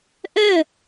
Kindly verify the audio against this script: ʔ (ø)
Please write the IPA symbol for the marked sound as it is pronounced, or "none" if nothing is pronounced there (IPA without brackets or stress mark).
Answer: œ